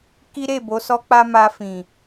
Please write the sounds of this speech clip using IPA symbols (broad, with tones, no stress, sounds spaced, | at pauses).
k i˦ ɾ e˦˨ b o˨˦ s ɔ˦ k͡p a˦ m a˧ f ĩ˨